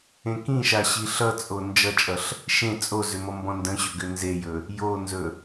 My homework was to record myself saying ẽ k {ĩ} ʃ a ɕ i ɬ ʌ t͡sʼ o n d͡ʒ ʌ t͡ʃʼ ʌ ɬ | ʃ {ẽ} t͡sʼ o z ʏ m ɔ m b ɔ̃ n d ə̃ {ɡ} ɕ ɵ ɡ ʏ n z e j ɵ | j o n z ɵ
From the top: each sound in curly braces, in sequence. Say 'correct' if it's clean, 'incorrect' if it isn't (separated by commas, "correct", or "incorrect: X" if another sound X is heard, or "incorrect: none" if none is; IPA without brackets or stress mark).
correct, correct, incorrect: none